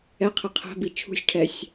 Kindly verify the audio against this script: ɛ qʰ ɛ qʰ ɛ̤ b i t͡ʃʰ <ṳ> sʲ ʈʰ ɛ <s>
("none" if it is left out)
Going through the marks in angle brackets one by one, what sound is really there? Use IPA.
ṳ, sʲ

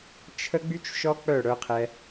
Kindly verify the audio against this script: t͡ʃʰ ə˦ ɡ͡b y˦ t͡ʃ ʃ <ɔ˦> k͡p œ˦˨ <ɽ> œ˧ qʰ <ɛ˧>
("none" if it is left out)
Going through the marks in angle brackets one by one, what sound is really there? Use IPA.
ɔ˦, ɽ, ɛ˧

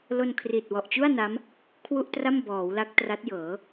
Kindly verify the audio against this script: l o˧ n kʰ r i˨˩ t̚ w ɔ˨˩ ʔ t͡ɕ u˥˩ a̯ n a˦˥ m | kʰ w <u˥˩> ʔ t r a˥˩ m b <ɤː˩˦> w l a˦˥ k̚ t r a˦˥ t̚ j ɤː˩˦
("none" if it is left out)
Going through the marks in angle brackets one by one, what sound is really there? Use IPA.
u˥˩, ɔː˩˦

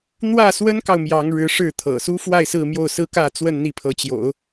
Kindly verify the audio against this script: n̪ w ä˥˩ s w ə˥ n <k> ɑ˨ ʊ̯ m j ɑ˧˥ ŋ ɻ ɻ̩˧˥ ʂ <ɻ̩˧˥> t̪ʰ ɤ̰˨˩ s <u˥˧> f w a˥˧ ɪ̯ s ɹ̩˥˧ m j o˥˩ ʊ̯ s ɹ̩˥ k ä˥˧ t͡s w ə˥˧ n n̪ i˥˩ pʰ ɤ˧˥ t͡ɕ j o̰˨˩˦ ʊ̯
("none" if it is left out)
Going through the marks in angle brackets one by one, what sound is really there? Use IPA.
k, ɻ̩˥˩, u˥

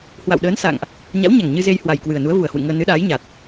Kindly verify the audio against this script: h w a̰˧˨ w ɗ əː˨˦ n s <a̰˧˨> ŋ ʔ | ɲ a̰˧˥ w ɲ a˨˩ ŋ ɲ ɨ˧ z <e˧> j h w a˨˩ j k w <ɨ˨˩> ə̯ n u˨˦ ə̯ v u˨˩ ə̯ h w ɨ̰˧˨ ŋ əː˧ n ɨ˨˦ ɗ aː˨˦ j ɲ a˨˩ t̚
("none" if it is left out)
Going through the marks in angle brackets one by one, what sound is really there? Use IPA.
a̰˧˨, e˧, ɨ˨˩

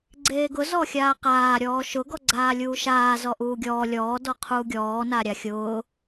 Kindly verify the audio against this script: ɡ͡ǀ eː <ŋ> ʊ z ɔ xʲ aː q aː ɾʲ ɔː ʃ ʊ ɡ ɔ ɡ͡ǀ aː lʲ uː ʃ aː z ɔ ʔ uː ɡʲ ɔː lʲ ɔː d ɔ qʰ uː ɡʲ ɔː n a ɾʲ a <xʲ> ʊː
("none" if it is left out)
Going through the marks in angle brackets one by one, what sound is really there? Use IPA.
ɡ, xʲ

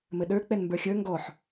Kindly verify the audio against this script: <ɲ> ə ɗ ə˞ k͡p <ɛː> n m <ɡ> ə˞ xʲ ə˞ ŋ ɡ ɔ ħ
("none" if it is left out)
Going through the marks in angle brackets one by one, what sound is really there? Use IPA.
m, ɛ, b

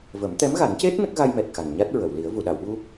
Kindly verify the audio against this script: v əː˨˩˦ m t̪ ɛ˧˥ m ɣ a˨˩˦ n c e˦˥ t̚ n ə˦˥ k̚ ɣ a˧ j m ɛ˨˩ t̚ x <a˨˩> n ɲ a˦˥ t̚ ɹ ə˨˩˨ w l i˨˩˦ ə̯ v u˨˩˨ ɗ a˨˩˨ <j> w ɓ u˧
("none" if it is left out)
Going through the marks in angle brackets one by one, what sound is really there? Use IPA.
a˨˩, none

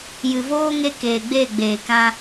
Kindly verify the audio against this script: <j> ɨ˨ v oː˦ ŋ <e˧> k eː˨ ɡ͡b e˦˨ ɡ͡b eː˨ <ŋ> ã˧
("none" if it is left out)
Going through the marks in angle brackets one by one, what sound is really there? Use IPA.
j, e˧, k

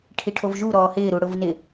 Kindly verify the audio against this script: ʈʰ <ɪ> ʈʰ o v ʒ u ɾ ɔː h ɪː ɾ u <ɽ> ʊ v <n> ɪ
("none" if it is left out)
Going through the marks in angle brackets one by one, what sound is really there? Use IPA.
i, ɽ, n

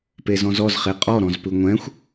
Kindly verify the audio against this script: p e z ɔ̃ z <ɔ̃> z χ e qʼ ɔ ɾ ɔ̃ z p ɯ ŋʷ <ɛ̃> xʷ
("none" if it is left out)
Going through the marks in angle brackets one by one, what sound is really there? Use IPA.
ɔ, ɛ̃

